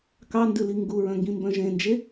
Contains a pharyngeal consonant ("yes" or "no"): no